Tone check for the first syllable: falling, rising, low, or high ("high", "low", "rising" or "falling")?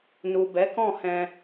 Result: low